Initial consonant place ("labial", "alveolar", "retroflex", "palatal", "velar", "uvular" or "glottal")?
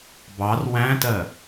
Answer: labial